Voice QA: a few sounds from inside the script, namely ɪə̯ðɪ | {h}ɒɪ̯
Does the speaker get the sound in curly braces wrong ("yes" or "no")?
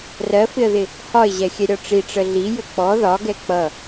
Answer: no